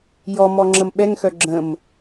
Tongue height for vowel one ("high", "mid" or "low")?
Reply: mid